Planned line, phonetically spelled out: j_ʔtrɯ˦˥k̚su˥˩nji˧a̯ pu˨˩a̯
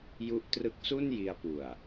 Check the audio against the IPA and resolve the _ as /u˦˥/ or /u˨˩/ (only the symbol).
u˦˥